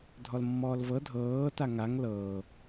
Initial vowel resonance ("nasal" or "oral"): oral